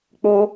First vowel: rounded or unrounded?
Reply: rounded